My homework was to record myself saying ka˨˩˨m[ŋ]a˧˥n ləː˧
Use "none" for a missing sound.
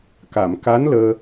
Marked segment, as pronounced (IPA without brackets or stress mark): k